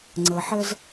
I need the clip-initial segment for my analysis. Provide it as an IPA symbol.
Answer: ŋ͡ǀ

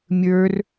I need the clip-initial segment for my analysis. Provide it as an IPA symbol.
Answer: mʲ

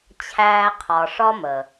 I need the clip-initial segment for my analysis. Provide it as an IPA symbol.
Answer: t͡ɕʰ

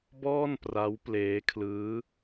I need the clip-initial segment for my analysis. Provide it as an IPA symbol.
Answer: b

